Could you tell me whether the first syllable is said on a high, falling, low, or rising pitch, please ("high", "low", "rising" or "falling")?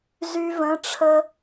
high